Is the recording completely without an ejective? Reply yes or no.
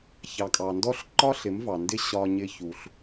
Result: no